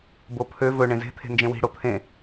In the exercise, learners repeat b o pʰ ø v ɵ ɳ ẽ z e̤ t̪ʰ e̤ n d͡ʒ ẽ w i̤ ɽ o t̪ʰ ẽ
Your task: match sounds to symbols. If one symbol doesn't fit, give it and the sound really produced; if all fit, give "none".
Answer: none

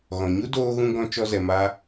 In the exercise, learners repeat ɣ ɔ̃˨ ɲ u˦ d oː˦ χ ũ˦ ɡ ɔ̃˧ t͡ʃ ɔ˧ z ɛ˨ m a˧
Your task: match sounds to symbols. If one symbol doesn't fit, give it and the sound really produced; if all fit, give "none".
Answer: χ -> ɣ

